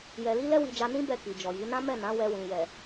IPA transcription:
j ɛ˧ l i˦ l ɛ˦ w i˧ d͡ʒ a˧ n ĩ˦ b ɛ˦˨ k i˨ d͡ʒ ɔ˨ j i˨˦ n ã˦ m ɛ˦˨ n ã˨˦ w ɛ˧ w ĩ˨ j ɛ˨

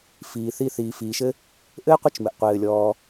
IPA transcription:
f iː˨ θ i˦ θ iː˨ f iː˨ ʃ ɘ˥ | ʔ ɘː˥ qʷ ɘ˦ t͡ʃ m ɘ˩ ʔ qʷ ɘː˩ lʲ ɔː˨

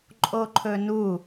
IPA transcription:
ǃʼ o ǃʰ ɵ n u

